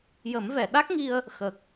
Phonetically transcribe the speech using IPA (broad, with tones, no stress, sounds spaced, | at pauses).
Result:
j ə˨˩˦ m v ɛ˨˩˨ ɗ a˦˥ k̚ ŋ i˧ ə̯ | x ə˨˩ k̚